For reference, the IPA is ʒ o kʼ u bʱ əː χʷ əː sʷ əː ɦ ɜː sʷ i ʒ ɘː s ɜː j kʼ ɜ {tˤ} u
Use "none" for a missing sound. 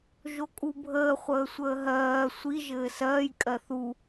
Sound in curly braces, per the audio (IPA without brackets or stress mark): θ